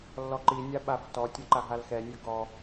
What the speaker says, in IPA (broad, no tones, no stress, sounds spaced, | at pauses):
lː ɔ ǃ i nʲ a ɓ a f t ɔ tʲ ɛ ǃ a ɦ a l x ɛ nʲ o ɡ ɔ